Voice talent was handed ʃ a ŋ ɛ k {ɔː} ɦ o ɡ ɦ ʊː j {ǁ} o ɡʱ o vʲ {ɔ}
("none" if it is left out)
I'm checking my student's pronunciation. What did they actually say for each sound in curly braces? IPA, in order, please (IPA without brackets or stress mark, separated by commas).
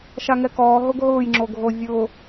ɔː, ŋ͡ǁ, ʊ